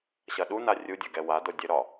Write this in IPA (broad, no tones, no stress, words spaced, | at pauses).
ɕɐɗuna rʲudʲɐ ɡɛwado dʲɘɾɒ